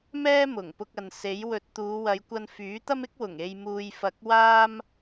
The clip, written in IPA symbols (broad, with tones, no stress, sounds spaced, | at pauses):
m ɛː˥ m ʊ˨˩ ŋ p ʊ˧ k̚ ɐ˨ n s e˨˥ j w ɵ˧ t̚ t̪ uː˨˧ w ɐ˨˧ j kʷ ɐ˧ n f yː˨˥ t̪ ɐ˥ m ɪ˥ k̚ w ʊ˨˩ ŋ e˨ j m uː˨ j f ɐ˨˥ k̚ w aː˥ m